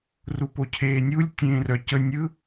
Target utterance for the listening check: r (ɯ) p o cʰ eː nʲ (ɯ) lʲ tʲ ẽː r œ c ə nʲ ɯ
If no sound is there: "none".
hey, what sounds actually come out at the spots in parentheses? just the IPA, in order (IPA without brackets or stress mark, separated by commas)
u, u